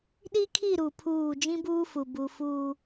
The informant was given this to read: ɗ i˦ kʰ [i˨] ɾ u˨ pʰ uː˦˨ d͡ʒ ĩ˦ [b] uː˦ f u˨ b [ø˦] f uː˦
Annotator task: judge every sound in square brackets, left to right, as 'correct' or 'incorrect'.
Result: incorrect, correct, incorrect

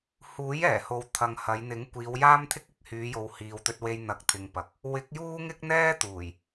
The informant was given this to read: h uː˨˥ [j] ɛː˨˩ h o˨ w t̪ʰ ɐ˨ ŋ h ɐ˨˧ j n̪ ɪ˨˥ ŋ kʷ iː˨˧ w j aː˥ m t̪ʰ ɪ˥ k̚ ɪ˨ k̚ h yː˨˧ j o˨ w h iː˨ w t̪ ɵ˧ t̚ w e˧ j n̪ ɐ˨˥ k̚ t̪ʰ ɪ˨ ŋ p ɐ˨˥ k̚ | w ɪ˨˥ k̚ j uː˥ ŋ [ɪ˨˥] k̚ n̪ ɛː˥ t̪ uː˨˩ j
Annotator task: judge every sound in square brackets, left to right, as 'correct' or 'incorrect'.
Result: correct, incorrect

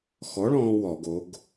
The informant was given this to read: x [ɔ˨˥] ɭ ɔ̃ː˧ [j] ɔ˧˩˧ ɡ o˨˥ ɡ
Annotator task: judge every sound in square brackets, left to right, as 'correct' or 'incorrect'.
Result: correct, incorrect

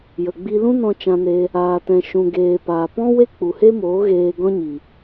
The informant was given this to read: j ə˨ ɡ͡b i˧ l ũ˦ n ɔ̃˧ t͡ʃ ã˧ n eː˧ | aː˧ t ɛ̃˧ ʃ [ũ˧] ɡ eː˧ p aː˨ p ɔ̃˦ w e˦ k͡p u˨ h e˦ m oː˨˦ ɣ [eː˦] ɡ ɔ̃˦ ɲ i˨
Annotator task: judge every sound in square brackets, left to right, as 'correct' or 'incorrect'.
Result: correct, incorrect

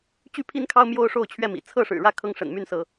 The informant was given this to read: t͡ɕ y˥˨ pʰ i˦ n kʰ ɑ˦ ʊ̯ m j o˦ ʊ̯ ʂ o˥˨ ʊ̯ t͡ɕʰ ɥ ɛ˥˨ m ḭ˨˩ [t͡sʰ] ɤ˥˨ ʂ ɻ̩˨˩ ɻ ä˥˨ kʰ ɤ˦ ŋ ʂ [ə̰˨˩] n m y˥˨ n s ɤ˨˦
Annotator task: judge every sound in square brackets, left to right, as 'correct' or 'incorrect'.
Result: correct, correct

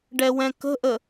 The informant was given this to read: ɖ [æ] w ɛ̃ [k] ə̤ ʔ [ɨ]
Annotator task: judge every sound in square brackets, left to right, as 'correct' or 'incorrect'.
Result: incorrect, correct, incorrect

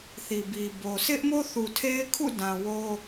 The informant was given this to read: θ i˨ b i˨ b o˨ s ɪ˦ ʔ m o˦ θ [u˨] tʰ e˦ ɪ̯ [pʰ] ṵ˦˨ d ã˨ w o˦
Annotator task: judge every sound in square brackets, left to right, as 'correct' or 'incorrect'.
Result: correct, incorrect

